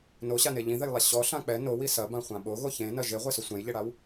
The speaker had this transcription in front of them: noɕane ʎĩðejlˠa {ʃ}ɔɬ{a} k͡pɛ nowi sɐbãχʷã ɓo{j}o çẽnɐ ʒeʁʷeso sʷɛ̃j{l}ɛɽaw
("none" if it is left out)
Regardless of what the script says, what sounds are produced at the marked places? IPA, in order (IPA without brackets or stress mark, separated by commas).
ɕ, ã, ɣ, ʎ